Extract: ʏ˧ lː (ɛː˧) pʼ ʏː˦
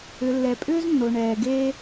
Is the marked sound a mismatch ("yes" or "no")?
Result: yes